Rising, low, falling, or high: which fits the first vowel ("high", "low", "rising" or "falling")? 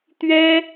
high